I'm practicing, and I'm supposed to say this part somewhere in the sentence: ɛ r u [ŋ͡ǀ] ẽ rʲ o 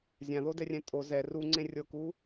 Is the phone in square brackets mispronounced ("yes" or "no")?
no